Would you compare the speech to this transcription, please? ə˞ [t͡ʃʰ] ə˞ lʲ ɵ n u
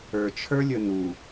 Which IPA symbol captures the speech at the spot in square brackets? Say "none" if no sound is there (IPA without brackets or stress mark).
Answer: t͡ʃʰ